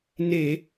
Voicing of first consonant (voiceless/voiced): voiced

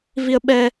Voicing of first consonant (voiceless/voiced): voiced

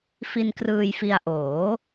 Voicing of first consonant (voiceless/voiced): voiceless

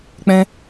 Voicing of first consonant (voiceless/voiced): voiceless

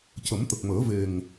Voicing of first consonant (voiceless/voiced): voiceless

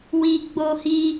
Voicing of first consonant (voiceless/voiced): voiced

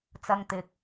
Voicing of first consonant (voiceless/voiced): voiceless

